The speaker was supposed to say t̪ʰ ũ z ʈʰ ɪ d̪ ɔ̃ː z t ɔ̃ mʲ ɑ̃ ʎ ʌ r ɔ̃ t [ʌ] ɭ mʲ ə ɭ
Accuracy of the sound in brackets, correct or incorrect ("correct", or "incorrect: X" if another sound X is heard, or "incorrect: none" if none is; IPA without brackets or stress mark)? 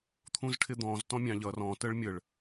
incorrect: ə